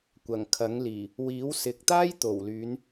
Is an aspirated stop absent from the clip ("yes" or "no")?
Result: no